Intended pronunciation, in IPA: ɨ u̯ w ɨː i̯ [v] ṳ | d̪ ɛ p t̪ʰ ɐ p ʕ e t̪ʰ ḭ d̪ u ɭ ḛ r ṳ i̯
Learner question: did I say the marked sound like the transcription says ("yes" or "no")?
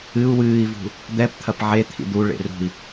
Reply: yes